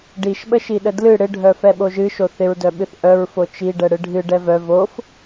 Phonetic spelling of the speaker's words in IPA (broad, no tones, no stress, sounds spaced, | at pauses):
ɖ i ʃ ɓ ə ʃ i ɗ ə d l ɨ ɽ ɪ ɖʱ œ f ɛ ɓ o ʒ ɨ ʃ o θ ɪ ɹ d œ ɓ ɨ θ ʔ œ ɹ f o t͡ʃ i ɖ ɛ ɽ ɨ ɖʱ ɨ ɖ ɛ v œ v o f